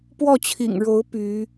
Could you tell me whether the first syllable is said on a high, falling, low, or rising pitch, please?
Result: falling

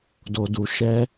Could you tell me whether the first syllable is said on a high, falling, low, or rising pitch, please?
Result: low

